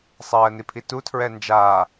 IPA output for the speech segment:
sˤ ɜː n i pʰ i t u tʰ ɹ ɛ n d͡ʒ aː

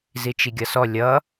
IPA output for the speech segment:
z i t͡ʃ i ɡʲ ʌ s ɔ lʲ ʌ

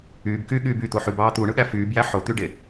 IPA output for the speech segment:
yː b k yː ɠ yː b y t̪ o ħ y b ɑː t̪ u ɳ ɯ ɠ æ f yː b j æ ħ o t̪ y ɖ e

